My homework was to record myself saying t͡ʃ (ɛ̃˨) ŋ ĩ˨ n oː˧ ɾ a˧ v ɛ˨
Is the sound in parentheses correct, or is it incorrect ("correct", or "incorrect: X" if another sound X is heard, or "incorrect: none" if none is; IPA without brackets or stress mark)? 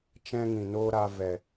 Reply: incorrect: ɛ̃˧